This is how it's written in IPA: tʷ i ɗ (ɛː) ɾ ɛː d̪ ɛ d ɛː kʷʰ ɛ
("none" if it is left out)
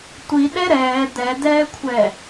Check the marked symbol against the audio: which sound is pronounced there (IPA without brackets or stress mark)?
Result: ɛ